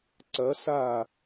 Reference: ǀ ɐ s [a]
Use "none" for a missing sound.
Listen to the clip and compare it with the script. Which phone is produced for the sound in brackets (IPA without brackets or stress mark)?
a